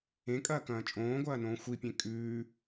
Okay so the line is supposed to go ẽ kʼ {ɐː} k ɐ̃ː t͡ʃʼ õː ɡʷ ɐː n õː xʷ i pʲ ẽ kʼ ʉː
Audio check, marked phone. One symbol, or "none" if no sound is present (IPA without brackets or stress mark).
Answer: ɐː